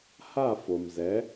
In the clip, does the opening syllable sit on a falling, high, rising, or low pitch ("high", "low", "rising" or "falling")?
falling